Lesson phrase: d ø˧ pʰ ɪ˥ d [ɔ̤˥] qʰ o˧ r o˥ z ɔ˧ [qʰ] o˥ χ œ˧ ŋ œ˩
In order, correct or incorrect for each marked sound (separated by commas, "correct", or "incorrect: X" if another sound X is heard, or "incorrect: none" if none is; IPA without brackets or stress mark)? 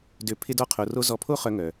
incorrect: ɔ˥, incorrect: pʰ